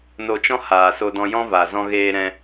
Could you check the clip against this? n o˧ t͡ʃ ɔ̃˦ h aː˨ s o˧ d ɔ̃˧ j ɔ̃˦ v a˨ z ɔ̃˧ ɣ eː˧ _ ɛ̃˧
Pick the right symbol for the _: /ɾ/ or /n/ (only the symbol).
ɾ